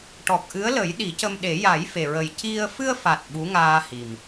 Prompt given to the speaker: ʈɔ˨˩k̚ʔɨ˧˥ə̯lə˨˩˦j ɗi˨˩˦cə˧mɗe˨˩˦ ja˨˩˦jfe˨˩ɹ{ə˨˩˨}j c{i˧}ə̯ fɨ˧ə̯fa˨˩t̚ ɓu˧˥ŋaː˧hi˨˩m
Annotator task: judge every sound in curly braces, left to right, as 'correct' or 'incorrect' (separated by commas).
incorrect, correct